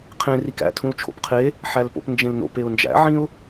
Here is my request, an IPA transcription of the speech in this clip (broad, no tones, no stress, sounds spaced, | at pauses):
qʰ ẽ r i k æ̰ tʰ ũ l t͡ʃʰ o̰ p qʰ e | ħ æ l p o̰ p n d͡ʒ ẽ l n o̰ p e ʊ̯ n d͡ʒ æ̰ ʕ ĩ ʊ̯